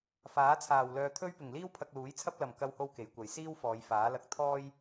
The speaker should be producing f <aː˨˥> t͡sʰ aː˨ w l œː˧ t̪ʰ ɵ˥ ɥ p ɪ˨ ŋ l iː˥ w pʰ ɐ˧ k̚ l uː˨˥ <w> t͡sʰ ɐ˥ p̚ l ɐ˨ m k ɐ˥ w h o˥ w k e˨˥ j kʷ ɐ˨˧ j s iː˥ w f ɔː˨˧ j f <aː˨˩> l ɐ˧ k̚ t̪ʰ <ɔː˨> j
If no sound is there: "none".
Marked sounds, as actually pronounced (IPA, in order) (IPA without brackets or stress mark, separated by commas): aː˨˥, j, aː˨˥, ɔː˥